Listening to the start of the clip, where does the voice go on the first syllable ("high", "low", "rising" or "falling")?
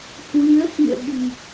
rising